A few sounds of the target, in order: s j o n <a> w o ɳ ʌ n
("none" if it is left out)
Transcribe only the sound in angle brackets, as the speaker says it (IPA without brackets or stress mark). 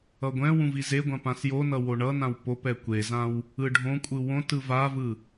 ʌ